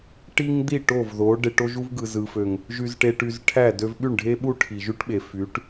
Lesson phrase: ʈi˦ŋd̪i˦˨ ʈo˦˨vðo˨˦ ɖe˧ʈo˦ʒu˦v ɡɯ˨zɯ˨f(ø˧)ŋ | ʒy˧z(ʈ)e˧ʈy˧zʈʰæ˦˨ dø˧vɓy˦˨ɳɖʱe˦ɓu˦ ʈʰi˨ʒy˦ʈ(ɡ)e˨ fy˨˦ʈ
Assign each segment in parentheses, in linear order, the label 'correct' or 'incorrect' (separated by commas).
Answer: incorrect, correct, incorrect